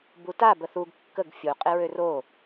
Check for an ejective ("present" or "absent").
present